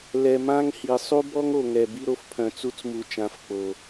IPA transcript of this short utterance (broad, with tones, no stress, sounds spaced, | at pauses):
l ɛ˨ m ã˦ ŋ h i˨ sˤ u˦ b ɔ˦ ŋ o˨ ŋ ɛ˨ b i˦ ɾ o˦ f pʰ œ̃˨ t͡s u˦ t͡s m u˨ t͡ʃ ã˨˦ f k͡p o˨